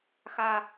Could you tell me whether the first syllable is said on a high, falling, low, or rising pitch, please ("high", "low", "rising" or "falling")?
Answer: high